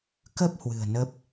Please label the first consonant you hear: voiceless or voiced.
voiceless